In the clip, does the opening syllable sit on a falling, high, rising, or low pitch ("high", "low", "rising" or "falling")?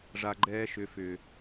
low